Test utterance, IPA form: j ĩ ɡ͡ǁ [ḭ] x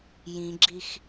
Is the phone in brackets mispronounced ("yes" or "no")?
yes